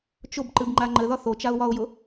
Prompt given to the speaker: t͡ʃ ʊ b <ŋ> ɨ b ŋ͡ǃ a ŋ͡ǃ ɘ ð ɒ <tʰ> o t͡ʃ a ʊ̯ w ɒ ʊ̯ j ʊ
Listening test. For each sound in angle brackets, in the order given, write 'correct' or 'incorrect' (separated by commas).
incorrect, incorrect